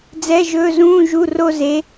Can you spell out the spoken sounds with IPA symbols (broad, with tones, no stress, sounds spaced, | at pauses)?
d͡z ɛ˧˥˧ ʒ ɵː˧˥˧ z ũː˧˥˧ ʒ u˧˥˧ r o˥˧ z e˧˥